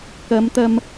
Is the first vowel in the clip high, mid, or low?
low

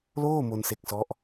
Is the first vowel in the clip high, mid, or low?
mid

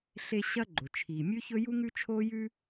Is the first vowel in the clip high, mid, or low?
mid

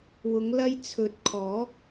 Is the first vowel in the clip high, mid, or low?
high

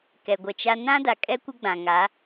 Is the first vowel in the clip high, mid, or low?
mid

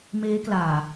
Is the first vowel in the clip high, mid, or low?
mid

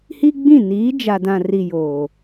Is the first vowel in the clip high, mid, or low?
high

